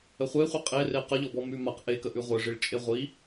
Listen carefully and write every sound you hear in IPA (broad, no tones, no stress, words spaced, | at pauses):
əχʷeχʷi qʼere qəʎɔbɔ mʉmaq ʔekə ʔʉʁʷeʐiɭt͡ʃʼe ʁʷi